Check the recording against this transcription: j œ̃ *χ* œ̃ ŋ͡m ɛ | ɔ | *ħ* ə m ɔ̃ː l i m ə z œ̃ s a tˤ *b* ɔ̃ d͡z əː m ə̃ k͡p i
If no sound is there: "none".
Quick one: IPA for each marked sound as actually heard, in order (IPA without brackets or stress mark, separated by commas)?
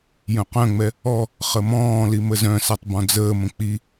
q, χ, b